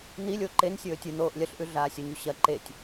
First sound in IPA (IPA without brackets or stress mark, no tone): n̪